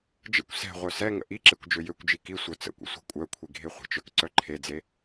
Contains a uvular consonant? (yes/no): yes